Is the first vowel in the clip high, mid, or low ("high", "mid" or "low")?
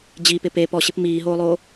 high